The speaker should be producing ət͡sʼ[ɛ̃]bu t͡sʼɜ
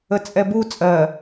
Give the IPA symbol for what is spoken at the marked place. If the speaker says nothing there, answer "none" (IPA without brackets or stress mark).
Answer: ɛ